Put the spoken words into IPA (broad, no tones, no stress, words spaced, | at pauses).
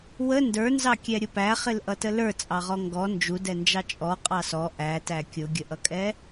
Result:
wə ndə˞nzɑkʲɛɾʲʊ pæχɪlʔʌtə lə˞t͡sʼɑʁɔ ŋɡɔ nd͡ʒudɛnd͡ʒɑ t͡ʃʼɔqʼɑ sɔ ʔætæ kʲʊɡʲəʔʌkʼɛ